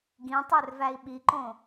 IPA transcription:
ɡ ĩ tˤ ø r v æ i̯ ɓ i ǃ õ

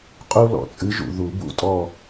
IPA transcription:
qʼ u˦ l ɔ̰˨ t͡sʼ ɨ˨˥ ʒ ṵ˨ ð u˨˩˦ b ṵ˦˨ tʼ ɔ˦˨

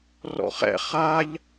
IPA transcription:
r ɔ̰ χ ɛ̰ χ a ʎ

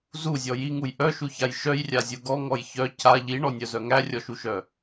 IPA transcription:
z u zʲ ɔ j i ŋ u j ʔ œ ʃ u ç a j ʃ œ j rʲ a zʲ u ɡ ɔ ŋ ɔ j ç œ c a ʎ i ɳ ɔ nʲ œ z œ ŋ æ rʲ ɔ ʃ u ʃ œ

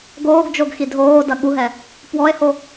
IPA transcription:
ɡ oː ɡ d͡ʒ o ɡ x i dʱ oː d ɐ ɠ u ɦ ɛ | p w ɔ e̯ h o

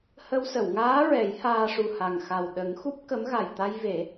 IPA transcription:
h ə˧ w s ə˨˩˨ w ŋ aː˧˥ ɹ ɛ˨˩˦ j h aː˧ ʂ u˨˩ h a˨˩ ŋ x a˨˩ w ɗ ə˨˩˦ ŋ x u˦˥ p̚ k ə˧˥ m ɣ a˨˩ j t̪ a˧ j v e˨˩˦

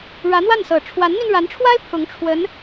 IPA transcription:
ɻ ä˧˥ n̪ w a˥˩ n s ɤ˨˩ ʈ͡ʂʰ w a˧˥ n n̪ i˧ n ɻ a˧˥ n ʈ͡ʂʰ w a˥ ɪ̯ pʰ ʊ˧˥ ŋ ʈ͡ʂʰ w ə˧˥ n

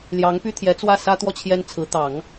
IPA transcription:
l j ɑ˧˥ ŋ p y˥ t̪ʰ j ɛ˧˥ t͡s w ä˥˩ s ä˥ t̪ w ɔ˥˩ t͡ɕʰ j ɛ˥ n t͡sʰ ɹ̩˧˥ t̪ ɑ˨˩˦ ŋ

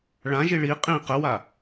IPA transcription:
ɭ ã ʒ i ɭ i qʼ ĩ q ə w a

